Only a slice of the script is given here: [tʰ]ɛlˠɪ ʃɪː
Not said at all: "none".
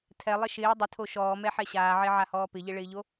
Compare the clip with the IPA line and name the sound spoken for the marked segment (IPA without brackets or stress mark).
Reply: tʰ